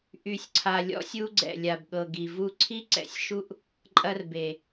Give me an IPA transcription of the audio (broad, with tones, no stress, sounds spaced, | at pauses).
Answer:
ʔ y˨ sʲ ǀʰ a˨ lʲ ɔ̰˦ sʲ u˦ ɡ͡ǀ ɛ̰˨ lʲ a˨ b ɠ ɤ˨ ɡ i˨ v u˦˨ ǀʰ i˦ ǀ ɛ̰˨ sʲ ʃ u˦ ʔ | ǃʼ ɐ˦ r b e˨